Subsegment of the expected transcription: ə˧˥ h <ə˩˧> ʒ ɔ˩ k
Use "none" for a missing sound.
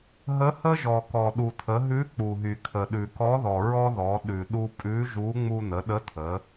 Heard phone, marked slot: ə˥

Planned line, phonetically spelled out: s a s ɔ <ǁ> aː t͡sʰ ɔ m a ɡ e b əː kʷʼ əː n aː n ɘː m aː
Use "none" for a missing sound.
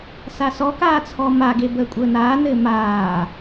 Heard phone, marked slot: k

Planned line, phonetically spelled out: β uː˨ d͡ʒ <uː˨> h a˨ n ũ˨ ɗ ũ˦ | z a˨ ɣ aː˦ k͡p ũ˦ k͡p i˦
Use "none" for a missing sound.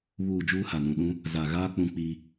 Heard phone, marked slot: uː˦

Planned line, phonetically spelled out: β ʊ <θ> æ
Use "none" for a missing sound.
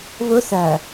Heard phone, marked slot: θ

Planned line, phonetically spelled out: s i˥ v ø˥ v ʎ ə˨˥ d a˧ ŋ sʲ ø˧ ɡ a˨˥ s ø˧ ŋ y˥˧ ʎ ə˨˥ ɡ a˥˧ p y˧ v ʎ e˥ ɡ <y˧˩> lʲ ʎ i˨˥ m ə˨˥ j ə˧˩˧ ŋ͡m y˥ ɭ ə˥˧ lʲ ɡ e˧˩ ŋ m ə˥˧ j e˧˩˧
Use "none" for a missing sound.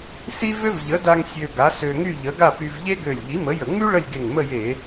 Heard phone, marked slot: ø˧˩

